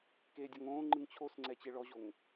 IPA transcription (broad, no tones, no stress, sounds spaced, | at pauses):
k e dʲ ɔ ŋ õː ŋ͡ǃ ɯ ŋ t͡ɕʰ o s ŋ͡ǀ ɛ t͡ɕ e ɭ ɔ ʑ o ŋ